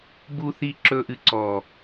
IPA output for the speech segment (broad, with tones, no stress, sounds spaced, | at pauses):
b u˨ θ i˨ ǁ ɵ˨ ʔ ɨ˨ ǀ ɔ˨